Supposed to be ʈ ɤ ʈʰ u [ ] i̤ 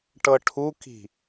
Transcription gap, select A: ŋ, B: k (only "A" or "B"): B